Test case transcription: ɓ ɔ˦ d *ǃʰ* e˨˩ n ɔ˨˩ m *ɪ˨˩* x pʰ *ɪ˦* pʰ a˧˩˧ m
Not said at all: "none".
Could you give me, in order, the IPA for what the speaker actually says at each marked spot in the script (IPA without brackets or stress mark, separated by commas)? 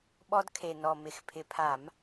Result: kʰ, ɪ˨˩, ɪ˨˩